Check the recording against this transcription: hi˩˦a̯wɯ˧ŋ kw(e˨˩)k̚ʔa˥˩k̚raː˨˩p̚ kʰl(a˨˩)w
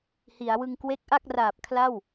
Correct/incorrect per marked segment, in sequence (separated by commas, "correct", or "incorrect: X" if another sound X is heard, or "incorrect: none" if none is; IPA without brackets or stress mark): incorrect: e˦˥, incorrect: a˥˩